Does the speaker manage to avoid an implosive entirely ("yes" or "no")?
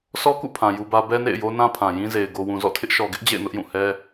yes